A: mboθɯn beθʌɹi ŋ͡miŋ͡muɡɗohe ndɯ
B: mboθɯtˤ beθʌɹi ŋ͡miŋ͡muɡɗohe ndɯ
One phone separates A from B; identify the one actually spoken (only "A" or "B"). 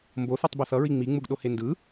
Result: B